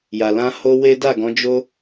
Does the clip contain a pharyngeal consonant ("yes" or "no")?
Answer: no